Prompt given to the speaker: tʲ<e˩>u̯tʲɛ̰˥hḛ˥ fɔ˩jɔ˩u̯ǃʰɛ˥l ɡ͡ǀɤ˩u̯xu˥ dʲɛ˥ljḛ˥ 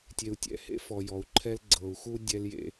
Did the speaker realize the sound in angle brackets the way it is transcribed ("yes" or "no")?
yes